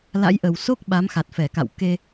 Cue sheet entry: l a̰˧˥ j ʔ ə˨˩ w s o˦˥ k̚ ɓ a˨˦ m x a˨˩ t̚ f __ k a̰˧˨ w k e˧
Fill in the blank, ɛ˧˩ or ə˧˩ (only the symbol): ɛ˧˩